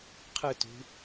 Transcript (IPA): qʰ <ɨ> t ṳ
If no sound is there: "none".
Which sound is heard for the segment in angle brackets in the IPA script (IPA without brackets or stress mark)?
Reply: ɨ